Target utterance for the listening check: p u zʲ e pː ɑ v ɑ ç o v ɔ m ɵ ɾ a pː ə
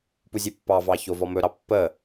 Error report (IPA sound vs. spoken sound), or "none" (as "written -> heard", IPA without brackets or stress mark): a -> ɑ